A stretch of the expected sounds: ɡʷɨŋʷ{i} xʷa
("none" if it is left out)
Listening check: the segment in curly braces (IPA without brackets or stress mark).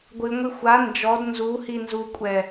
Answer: i